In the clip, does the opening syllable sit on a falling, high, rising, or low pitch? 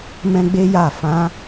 high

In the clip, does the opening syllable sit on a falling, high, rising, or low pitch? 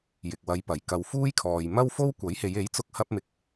low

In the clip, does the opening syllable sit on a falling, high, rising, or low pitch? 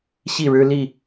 falling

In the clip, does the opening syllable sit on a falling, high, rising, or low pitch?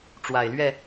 low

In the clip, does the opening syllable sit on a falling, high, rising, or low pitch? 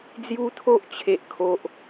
high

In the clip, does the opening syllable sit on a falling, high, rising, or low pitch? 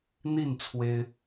falling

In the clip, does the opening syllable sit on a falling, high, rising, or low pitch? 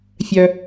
low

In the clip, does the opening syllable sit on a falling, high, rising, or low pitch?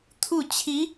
falling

